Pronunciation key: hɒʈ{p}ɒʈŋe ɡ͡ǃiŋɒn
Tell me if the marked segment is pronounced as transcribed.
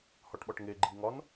no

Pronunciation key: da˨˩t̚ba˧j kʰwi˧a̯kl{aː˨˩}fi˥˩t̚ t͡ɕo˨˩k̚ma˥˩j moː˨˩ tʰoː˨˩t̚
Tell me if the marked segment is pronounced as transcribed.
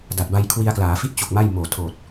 no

